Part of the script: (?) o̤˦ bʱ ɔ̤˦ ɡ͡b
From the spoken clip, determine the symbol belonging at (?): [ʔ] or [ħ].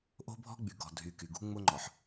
ʔ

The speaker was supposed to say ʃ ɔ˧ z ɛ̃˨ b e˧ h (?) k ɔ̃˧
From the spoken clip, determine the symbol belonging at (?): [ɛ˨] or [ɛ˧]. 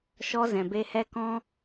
ɛ˧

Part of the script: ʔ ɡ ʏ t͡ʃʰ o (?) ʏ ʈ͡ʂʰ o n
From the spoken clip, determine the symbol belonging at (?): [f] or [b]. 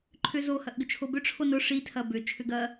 b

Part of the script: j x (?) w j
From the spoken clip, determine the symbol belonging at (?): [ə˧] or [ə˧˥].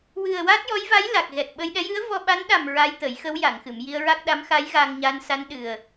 ə˧˥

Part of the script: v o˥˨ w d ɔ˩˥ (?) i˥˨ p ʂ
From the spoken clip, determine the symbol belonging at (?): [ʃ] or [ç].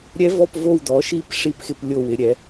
ʃ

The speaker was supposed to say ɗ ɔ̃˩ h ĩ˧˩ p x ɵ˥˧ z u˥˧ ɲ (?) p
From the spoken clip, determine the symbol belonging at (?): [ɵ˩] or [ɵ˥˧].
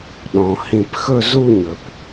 ɵ˩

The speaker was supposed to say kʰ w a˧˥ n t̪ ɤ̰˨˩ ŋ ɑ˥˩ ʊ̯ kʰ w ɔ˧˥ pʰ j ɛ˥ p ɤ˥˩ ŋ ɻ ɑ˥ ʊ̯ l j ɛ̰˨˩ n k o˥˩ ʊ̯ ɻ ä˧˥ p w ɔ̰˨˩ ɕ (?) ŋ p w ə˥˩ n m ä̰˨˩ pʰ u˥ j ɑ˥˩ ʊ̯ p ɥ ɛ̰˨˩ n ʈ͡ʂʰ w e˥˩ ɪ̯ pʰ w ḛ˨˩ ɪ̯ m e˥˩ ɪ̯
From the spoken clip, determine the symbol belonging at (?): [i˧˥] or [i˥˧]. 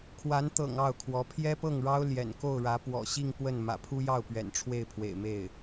i˥˧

